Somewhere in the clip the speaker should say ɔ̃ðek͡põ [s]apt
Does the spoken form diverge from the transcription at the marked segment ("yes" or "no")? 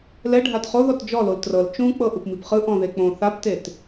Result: yes